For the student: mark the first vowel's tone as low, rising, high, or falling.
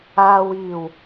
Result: low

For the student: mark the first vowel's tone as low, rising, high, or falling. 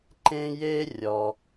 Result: high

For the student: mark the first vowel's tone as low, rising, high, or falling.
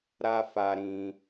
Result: high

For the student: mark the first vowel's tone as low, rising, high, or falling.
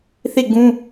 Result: falling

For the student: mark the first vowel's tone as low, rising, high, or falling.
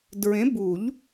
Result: rising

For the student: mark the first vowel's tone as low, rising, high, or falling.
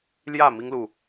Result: falling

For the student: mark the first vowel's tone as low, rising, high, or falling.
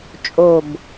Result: low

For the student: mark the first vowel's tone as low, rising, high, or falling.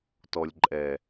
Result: low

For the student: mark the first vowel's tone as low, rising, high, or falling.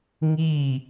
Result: falling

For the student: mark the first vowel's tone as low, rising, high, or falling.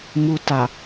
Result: high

